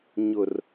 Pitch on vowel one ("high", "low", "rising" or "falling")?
low